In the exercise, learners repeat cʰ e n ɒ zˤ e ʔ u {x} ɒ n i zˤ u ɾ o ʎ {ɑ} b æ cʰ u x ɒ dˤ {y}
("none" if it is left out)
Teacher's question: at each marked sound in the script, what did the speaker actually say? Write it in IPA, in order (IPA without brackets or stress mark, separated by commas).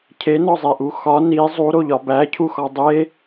x, ɒ, e